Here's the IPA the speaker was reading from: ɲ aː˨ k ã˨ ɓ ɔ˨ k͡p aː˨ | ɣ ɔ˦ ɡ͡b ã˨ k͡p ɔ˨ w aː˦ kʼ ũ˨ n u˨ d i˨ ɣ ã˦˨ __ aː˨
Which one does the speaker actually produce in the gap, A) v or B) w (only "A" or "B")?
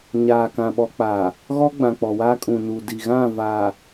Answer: A